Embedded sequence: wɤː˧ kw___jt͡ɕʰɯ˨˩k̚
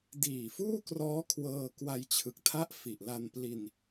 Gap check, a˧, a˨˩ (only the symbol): a˧